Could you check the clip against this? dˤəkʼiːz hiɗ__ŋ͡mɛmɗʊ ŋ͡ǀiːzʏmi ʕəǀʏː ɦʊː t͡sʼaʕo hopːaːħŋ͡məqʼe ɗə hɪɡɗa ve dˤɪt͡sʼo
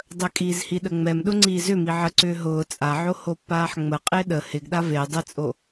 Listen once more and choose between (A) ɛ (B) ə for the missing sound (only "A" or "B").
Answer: B